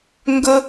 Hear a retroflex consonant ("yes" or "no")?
no